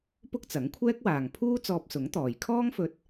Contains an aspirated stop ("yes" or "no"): yes